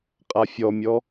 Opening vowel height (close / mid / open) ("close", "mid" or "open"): open